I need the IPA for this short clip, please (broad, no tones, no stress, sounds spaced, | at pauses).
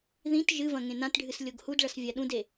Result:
ð ĩ t ʒ ɨ v ɐ̃ ŋ ẽ n ã t ɖʱ ɨ s lʲ o ɡ h u d ɭ ɐ s vʲ a ɗ ũ d e